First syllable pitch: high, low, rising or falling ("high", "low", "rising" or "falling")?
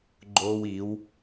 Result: high